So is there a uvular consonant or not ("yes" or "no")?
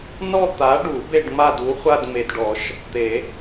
yes